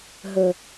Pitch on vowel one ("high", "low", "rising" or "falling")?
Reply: low